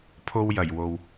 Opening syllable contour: high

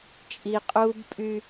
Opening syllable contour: low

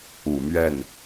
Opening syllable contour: low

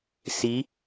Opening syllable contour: rising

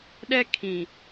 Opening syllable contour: high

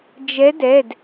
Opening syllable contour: rising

